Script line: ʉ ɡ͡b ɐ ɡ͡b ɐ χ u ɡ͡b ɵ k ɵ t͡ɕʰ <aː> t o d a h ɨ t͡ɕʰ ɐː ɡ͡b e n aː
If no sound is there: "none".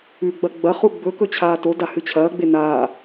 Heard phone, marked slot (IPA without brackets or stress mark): aː